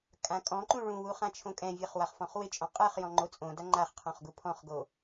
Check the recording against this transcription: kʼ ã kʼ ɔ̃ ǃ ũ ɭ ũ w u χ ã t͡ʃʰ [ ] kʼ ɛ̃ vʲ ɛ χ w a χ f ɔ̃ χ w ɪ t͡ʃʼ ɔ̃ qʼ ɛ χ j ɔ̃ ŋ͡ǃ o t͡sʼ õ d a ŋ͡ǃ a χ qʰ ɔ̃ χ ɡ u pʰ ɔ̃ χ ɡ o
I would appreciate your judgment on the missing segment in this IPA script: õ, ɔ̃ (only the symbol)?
õ